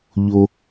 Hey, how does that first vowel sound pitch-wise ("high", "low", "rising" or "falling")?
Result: low